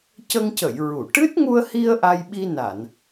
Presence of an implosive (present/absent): present